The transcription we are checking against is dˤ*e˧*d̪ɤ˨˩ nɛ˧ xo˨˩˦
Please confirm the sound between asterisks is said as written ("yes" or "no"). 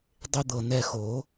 yes